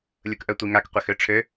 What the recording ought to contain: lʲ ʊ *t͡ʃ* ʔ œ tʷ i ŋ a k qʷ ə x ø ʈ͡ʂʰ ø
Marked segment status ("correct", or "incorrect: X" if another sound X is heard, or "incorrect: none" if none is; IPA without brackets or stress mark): incorrect: k